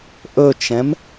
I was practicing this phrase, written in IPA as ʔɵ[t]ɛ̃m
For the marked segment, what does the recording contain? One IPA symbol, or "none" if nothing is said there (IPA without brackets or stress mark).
t͡ʃ